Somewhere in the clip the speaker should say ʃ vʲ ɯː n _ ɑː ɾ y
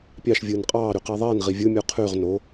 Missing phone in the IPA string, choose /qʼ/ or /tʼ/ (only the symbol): qʼ